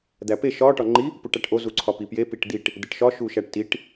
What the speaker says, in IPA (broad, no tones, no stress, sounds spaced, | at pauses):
d̪ æ p e ʃ ɒ ʈ ɒ ŋ͡ǃ i | p u ʈ æ ʈ ʔ o z u ǀʰ ɒ p i p j e p i ʈ d̪ i ʈ | d̪ e ʈ ʃ ɒ ʃ u ʃ æ ʈ t i ʈ